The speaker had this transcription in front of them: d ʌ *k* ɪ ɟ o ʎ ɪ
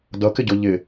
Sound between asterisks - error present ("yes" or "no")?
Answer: no